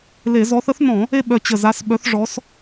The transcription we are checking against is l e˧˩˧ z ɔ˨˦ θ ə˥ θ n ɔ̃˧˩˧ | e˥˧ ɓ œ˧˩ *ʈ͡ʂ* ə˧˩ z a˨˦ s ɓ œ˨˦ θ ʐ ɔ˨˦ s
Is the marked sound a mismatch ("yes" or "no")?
yes